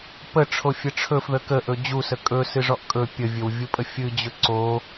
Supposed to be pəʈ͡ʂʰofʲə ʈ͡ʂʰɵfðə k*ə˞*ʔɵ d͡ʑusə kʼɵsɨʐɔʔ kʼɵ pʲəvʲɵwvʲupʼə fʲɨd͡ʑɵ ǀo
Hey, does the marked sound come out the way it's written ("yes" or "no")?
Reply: no